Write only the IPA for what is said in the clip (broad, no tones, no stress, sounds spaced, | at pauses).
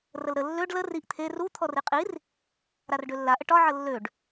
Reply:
r ə l ɾ ə lː ø ɖ l ə r i ʔ t̪ʰ e r u t̪ʰ ɔ r i qʼ i r | ɾ a r ɖ ø lː a ʔ ə ʈ ɒ ʕ ə lː ø ɖ